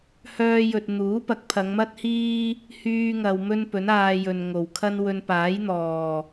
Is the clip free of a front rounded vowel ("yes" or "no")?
no